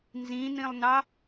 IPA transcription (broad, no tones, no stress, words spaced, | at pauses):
nzĩnĩlˠnɑ